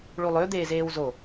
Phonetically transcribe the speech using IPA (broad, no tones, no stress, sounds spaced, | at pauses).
ɭ u lˠ ø d̪ eː z eː w z o